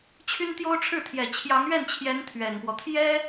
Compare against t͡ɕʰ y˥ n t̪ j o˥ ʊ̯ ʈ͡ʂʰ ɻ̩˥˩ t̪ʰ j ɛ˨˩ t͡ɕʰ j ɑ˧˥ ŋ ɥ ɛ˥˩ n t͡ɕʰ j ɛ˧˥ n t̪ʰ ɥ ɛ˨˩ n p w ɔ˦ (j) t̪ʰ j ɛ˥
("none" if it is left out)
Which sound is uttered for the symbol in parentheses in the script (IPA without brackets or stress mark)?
none